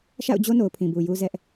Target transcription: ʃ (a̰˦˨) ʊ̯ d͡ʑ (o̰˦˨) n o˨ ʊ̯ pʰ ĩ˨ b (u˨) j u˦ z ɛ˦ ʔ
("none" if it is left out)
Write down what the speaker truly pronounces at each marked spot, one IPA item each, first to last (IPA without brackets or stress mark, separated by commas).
a̰˦˨, o˦, u˨